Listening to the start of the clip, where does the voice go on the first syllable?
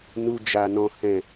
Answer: low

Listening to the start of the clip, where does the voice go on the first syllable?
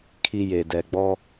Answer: high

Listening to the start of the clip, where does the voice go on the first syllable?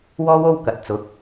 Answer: high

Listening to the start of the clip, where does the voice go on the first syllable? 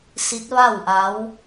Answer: rising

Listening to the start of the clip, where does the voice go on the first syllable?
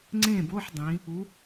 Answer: falling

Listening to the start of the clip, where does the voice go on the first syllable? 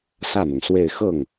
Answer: falling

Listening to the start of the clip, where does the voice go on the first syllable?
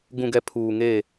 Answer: low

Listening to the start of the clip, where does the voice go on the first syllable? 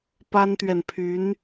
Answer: high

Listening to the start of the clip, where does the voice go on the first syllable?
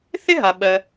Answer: high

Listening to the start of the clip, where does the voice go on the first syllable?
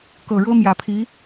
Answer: low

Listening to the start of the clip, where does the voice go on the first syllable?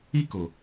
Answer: high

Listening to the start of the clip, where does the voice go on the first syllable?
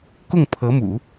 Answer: falling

